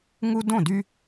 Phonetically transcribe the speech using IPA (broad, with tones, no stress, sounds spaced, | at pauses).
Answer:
ŋ u˦ d õ˥˩ d y˦